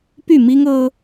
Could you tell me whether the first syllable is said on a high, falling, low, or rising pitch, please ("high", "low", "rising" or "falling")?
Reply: falling